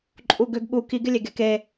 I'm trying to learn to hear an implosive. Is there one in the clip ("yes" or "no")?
yes